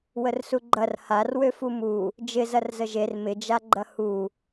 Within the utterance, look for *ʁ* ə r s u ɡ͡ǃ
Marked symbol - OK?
no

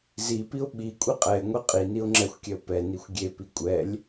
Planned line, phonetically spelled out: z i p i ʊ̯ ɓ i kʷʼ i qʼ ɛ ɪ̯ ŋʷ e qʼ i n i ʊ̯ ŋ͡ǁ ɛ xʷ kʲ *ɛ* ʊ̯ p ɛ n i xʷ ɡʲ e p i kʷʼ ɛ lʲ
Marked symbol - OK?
yes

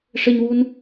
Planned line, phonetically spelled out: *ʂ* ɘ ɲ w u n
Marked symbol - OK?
yes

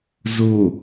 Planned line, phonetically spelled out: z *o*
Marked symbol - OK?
yes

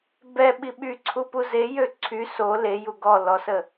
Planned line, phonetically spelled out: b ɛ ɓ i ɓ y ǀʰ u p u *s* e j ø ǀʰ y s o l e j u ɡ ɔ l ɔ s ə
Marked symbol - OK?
no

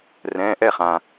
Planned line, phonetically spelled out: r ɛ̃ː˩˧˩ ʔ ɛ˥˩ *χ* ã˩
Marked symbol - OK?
yes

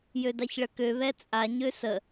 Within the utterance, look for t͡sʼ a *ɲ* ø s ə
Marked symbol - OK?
yes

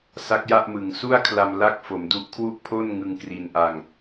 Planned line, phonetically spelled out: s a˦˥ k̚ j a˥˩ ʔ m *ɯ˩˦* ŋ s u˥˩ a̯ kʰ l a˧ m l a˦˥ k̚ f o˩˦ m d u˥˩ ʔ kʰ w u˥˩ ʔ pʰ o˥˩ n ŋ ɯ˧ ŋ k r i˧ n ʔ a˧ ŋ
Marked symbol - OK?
yes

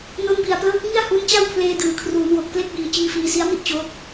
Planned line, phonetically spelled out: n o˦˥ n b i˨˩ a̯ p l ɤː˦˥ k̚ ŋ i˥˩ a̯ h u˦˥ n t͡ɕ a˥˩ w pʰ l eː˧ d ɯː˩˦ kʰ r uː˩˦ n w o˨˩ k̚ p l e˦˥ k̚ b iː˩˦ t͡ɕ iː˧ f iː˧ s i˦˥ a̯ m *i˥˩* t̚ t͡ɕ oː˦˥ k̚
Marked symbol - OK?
yes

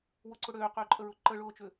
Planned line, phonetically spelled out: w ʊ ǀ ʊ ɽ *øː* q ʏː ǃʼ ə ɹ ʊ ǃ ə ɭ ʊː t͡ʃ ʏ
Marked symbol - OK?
yes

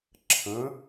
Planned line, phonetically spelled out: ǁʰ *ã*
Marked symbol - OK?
no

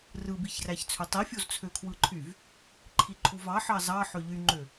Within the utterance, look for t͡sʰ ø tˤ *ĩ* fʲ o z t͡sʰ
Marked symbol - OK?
no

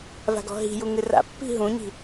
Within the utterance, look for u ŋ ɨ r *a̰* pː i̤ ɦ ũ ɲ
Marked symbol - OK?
yes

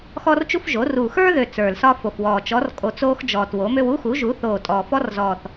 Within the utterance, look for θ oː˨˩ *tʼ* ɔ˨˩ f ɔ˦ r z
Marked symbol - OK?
yes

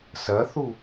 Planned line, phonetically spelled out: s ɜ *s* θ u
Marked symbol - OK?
no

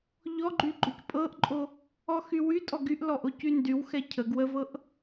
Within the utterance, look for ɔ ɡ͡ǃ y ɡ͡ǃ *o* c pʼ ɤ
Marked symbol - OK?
yes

